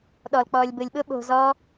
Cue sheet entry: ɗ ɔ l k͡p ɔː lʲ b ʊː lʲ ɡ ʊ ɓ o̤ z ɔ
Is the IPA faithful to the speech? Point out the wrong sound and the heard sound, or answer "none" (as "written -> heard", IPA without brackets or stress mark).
ɡ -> ɓ